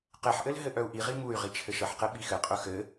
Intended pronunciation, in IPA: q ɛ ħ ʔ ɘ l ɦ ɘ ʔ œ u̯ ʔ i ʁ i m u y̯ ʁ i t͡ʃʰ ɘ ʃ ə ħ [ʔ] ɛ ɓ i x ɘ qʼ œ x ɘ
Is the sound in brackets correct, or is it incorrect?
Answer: incorrect